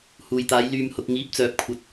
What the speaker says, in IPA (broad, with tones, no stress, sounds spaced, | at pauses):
h uː˨ j t̪ aː˨˧ j l yː˨ m h ʊ˨ k̚ ŋ iː˨˥ p̚ t͡s œː˨ p̚ kʷʰ ɐ˨˥ t̚